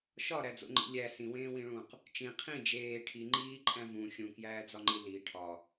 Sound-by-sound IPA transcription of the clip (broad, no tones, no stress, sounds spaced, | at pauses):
ʃ ɒ ɾ æ d͡z o̰ ŋ͡ǃ ḭ lʲ æ s ĩ w ẽː w ĩ ɭ ũː q | t͡ʃ ĩ qʰ ĩ d͡ʒ eː ʈʰ i ŋ͡ǃ iː ǃʼ æ̃ v ũ xʲ ũ k j æː d͡z ɒ ŋ͡ǃ i l i ʈʰ ɒ